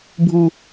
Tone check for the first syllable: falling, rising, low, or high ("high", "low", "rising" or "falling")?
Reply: low